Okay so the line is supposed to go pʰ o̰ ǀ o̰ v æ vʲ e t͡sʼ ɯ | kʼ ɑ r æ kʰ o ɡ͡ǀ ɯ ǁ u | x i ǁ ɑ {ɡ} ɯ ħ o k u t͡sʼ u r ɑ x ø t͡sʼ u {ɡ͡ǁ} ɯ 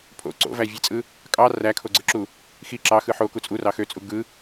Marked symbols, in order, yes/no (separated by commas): no, no